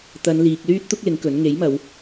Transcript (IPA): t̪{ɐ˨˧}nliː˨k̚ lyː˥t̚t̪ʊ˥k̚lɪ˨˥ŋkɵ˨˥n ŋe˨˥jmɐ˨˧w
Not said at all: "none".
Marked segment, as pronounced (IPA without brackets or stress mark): ɐ˨˧